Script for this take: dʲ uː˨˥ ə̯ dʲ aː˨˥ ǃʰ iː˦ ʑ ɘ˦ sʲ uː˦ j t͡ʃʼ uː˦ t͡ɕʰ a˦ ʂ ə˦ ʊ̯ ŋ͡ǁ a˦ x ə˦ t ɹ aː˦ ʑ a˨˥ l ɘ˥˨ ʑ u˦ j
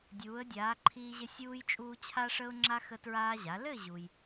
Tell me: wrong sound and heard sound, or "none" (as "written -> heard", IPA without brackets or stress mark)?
none